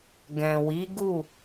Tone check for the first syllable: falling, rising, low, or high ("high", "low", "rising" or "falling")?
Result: low